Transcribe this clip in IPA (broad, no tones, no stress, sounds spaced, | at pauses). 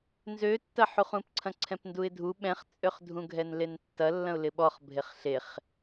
n z ø tː ɐ ħ u χ ũ p ǀʰ ɐ̃ ǀʰ ɛ̃ p n d u ɪ̯ dʱ u ɓ ɛ̃ χ t͡sʼ ø χ dʱ ũ ɡʱ ɛ n l e n tː ɐ lː ɐ̃ ʊ̯ l ɪ ɓ ɔ χ bʱ e χ ɬ e χ